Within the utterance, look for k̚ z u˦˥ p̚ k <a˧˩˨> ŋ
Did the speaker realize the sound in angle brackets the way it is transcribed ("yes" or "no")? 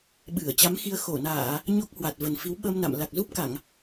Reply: yes